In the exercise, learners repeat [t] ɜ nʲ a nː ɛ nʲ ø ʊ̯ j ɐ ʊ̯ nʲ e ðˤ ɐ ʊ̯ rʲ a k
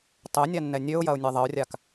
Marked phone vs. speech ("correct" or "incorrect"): incorrect